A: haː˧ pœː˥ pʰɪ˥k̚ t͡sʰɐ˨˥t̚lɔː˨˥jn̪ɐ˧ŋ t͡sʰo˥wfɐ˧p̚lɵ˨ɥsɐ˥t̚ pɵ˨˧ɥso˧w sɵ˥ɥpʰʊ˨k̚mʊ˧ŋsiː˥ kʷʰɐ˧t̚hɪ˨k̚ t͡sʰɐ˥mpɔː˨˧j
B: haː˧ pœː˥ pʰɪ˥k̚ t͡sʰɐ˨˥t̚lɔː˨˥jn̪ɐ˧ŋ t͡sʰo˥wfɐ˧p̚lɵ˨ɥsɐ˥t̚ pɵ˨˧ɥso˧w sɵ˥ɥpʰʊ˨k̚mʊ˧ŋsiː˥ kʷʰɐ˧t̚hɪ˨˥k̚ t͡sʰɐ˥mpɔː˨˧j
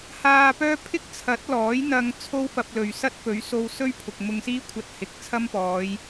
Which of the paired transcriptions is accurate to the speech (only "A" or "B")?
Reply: A